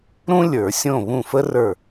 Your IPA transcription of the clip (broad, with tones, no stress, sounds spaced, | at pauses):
ɾ ũ˥ lʲ ə˞˨˩˦ sʲ õ˦˨ β ũ˦˨ f ə˥ r ə˞˦˨